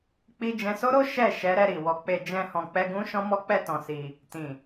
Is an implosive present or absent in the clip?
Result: absent